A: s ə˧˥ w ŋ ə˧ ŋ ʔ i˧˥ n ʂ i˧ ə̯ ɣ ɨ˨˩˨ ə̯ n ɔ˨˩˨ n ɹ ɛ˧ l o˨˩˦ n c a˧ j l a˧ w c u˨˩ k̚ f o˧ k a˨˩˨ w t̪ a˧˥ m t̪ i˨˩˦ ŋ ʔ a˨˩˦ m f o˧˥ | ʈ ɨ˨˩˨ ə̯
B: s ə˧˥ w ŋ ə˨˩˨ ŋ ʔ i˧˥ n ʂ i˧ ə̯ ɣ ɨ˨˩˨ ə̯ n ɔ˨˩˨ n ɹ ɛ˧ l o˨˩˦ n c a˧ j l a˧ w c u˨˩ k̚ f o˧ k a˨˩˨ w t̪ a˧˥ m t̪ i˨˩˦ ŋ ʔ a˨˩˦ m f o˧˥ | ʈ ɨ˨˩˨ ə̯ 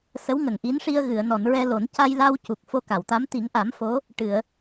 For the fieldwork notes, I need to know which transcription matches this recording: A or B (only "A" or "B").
B